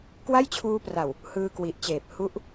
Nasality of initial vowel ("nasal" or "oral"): oral